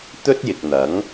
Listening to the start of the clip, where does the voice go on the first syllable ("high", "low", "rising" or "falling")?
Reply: high